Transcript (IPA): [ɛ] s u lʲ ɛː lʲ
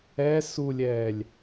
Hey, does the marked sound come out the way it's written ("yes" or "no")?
yes